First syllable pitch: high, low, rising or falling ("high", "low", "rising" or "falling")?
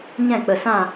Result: falling